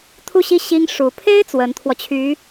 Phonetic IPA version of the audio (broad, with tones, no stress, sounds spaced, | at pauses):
t̪ʰ u˥˧ ɕ i˥˩ ɕ i˥ ŋ ʂ u˧˥ pʰ e˥ ɪ̯ t͡s w ə˧˥ n t̪ʰ w ɔ˧ t͡ɕʰ y˧˥